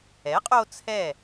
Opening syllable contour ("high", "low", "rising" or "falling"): rising